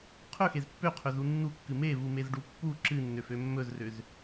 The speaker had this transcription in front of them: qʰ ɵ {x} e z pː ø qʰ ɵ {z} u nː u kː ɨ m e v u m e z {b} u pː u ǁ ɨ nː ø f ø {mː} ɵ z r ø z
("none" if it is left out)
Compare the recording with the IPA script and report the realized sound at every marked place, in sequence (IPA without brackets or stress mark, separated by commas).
x, z, ɖ, mː